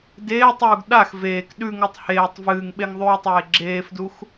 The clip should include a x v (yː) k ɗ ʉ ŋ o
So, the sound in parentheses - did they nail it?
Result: no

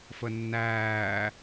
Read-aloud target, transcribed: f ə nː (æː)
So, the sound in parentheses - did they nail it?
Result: yes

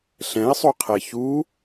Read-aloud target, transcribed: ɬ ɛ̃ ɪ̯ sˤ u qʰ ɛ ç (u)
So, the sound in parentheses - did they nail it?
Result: yes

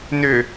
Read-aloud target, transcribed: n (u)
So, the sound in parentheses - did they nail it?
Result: no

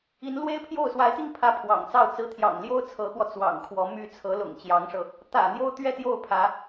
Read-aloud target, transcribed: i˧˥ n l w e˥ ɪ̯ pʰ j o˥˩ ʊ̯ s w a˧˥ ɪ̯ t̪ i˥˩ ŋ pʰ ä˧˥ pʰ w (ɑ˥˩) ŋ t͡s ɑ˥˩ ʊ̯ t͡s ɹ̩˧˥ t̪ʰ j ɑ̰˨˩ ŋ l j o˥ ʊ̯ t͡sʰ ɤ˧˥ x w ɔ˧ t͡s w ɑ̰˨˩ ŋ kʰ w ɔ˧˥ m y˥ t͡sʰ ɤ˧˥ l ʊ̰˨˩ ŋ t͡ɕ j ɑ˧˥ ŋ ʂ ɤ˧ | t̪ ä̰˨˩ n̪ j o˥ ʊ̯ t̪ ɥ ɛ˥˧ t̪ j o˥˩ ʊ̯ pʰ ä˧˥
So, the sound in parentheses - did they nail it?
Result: no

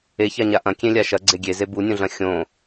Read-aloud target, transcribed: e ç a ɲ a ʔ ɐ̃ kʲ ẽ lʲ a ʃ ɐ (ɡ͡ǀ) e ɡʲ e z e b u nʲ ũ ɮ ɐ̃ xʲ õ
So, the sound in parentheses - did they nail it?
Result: yes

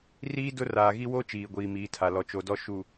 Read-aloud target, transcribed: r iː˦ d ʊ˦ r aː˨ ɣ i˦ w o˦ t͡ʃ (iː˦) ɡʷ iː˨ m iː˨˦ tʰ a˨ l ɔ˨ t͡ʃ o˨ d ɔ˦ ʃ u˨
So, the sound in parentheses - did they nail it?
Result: no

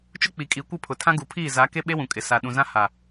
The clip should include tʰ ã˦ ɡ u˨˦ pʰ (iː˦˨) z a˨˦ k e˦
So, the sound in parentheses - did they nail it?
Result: yes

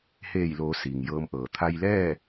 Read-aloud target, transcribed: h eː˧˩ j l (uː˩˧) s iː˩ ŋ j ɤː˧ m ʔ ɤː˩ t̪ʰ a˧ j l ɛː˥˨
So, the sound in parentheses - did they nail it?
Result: no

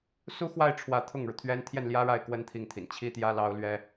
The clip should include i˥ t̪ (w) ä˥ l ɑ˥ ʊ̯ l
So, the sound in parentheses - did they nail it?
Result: no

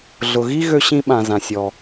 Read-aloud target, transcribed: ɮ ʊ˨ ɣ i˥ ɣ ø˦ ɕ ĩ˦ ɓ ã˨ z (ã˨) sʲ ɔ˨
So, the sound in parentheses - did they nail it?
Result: yes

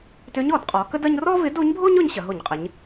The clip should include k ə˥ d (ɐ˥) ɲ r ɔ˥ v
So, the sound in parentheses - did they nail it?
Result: yes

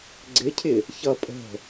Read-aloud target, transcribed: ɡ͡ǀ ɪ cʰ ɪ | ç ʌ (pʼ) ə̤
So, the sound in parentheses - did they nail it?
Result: yes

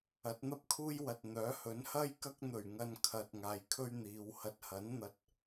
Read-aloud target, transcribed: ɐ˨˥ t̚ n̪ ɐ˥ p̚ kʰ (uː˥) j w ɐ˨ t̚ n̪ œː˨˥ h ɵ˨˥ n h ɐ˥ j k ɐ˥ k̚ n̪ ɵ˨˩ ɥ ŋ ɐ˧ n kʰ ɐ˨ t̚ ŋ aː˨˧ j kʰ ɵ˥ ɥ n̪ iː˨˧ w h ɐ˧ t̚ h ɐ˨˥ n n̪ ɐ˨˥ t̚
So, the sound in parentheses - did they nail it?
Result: yes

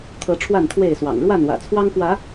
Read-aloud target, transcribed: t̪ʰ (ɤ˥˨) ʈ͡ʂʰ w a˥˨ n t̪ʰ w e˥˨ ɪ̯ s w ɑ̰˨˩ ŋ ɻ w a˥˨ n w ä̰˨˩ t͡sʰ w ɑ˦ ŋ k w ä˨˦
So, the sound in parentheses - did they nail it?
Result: no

